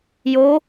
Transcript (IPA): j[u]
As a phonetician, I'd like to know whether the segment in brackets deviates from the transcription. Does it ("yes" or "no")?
yes